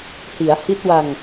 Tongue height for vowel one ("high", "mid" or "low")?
high